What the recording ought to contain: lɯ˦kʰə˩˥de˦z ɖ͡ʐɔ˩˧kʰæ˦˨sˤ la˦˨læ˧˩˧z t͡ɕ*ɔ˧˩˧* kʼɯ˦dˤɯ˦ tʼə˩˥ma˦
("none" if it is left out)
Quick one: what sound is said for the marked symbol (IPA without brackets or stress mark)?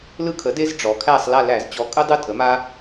ɔ˩˥